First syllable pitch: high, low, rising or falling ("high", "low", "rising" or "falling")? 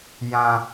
low